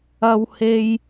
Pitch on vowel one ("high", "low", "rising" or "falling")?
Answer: high